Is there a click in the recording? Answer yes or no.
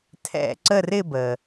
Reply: yes